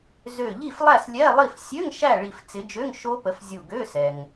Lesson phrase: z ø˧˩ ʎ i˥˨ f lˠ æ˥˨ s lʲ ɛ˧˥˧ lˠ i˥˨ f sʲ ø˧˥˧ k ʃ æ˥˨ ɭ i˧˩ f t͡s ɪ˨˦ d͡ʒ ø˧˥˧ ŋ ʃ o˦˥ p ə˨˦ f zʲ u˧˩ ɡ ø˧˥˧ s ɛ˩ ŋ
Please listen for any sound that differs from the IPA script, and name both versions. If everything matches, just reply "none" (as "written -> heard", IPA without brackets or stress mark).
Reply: k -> ŋ